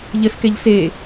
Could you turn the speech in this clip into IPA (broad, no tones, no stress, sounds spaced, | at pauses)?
ʎ ə s k ɛ ʎ s e